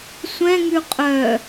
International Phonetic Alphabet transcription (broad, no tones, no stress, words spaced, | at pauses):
sʷɛ̃ŋʉ qʼœ